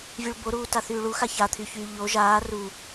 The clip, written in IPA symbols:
vʲuɭboɾuːta θyːɭuxa çat̪ʰyçyː ʎo ʒaː ru

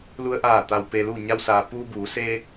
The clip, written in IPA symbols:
lu˧ə̯ʔaː˧˩ t̪a˩wpe˩lu˧˩ ɲa˧wsaː˩ puː˧buː˩˧ seː˧

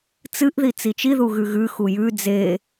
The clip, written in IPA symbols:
t͡sɨʔði t͡sit͡ʃiðu ɣʉɣʉxu jʉ d͡ze

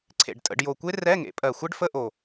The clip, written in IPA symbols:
ǀʰḛ˨˩ɖtʼə̰˩˧ɖjo˨˩kʷe˦˥ rɛ˧˥˧ŋḛ˩˥ pʼɜ˨˩xʷɛ˦˥ɖfə˧˥˧ʔo˨˩

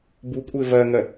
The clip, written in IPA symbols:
bukʷʼɪː vɜŋɜ

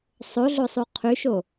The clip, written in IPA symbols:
sˤoɮosˤu qʰyʃo

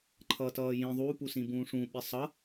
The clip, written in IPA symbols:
ǃʰʌːtʌːjĩ ðˤu pusĩbũːʂũ ɓisˤʌ

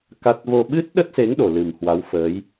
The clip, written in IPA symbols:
ka˦˥t̚ vo˧ ɓɨ˦˥t̚ɗə˦˥t̚se˨˦ŋ ɗo˨˩lɨ˨˩mhwa˨˦wfəː˨˦j

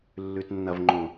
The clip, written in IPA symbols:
lːʉtnːɐvŋ͡ǃõ

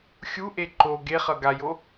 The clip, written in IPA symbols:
xʲuʔe ǃo ɡeχʌ ɡajo

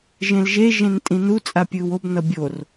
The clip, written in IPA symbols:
ʒẽlʒe ʒẽntʼĩnu t͡sʼapʲɯːwob nʌbʲor

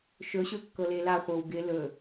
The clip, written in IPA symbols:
ʃɵɕɵkːɤle laχʷɤw ɡɪ lɵ

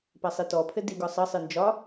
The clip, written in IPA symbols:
pasˤitɔpʰɘ diɡɒ sˤɤsˤɨ nd͡ʒɒ

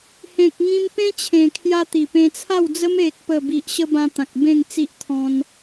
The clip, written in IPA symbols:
hẽ˨k̚ŋĩ˧m pẽ˧ t͡ɕʰẽ˨˩kʰja˧ t̪i˨˩pẽ˧t͡sʰa˥˧wd͡zə˦m e˨k̚pə˨˩bi˨ʔɕə˧ bã˧t̪ã˨k̚ bẽ˥˧ŋt͡si˦ʔ t̪ʰɔ̃˧n

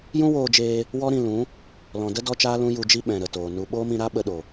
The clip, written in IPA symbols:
jũ˦woː˧d͡ʒeː˧ | wɔ˦ɾĩ˧lũ˨˦ | lɔ̃˨də˦ dɔ˦t͡ʃaː˦lũ˦ ju˧d͡ʒi˦ ɓɛ̃˨ɾə˨toː˨ nu˨ ɓoː˦mĩ˧ɾa˦ ɓə˧ ɗo˨

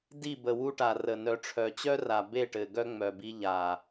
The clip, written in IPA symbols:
di˦˨bə˨wu˦ʈa˨ rə˨ nœ˨ʈ͡ʂʰœ˨t͡ɕœ˦ra˨ be˦˨ʈɘ˨ ɡœ˦ŋ͡mœ˨bi˧ ʎa˨

